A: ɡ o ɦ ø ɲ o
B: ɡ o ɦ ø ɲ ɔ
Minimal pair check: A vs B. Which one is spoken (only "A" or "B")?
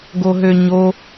A